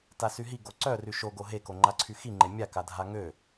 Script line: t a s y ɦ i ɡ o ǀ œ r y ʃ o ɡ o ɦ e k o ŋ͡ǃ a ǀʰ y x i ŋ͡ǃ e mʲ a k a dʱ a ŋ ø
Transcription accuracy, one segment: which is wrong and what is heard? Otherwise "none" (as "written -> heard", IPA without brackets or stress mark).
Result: none